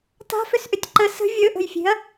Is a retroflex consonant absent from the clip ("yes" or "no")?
yes